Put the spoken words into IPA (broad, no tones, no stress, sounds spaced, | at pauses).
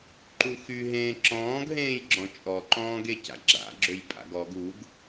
ǃ u x y ɦ ẽː ǁ ɔ̃ː ɡ ɦ ẽː j ɡ͡ǁ ɔ̃ t͡ʃʼ ɔ ǃ ɔ̃ː ɡ e c a̰ ɡ͡ǁ a̰ ɡ͡ǁ ø j pʼ a̰ ɡ ɔ ɡ u ɡ